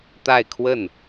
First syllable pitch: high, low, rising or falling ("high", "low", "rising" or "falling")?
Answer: falling